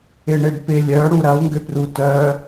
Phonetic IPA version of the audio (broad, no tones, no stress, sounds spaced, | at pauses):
ɪ ɳ e ɖ p ɪ lʲ œ ɽ u ɾ ɐ u̯ ŋ ɡ ʏ p r u t œ